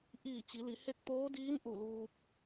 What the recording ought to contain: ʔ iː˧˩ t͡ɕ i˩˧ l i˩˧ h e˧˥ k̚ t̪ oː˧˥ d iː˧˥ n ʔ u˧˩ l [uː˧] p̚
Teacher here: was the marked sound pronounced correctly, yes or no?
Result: yes